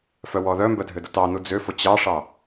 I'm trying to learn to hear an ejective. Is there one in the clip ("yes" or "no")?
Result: no